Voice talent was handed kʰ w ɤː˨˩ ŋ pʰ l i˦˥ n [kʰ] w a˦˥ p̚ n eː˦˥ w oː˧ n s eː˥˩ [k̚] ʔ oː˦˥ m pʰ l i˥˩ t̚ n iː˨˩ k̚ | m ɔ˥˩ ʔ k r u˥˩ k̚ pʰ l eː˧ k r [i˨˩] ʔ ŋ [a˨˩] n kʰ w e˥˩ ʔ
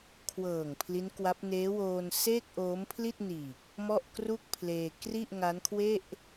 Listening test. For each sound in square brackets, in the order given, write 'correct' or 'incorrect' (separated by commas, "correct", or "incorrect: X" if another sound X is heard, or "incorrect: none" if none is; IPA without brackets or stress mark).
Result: incorrect: k, correct, incorrect: i˥˩, incorrect: a˦˥